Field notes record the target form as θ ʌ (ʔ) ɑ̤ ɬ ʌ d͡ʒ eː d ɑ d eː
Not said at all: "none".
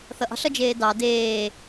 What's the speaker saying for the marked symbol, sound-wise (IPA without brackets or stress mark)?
ʔ